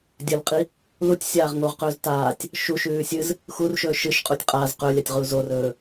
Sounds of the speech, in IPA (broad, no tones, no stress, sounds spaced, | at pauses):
dʲ ɐ l qʼ i | l u tʲ sʲ aː ʁ ŋ o ʁ q ɵː z t aː tʲ | ʃ u ʃ ʉː sʲ ɨ z | x u r ʃ ɵː ʃ ɨ ʃ qʼ u tʲ qʼ a z q ɵ lʲ a tʲ ʁ u z o r ɵː